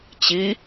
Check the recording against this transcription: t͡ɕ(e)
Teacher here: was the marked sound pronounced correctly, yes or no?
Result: no